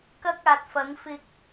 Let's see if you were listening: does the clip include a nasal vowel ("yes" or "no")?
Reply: no